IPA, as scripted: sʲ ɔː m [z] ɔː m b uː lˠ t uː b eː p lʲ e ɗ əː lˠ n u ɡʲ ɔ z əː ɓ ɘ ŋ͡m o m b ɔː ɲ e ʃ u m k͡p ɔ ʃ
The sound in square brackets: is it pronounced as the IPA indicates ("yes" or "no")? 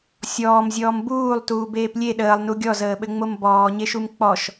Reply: no